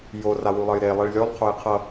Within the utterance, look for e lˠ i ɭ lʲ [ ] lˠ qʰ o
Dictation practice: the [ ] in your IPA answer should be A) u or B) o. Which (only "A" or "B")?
B